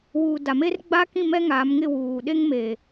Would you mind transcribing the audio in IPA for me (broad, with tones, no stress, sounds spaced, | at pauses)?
w uː˨ d a˨ m e˦ r ɡ͡b a˦ k ĩ˦˨ m ɛ˦ ŋ aː˨˦ m ŋ ɪ˦˨ w uː˨ ɗ e˦ ŋ m eː˨